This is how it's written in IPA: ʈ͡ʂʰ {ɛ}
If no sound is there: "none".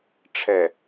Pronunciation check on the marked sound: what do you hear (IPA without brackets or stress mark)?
ɛ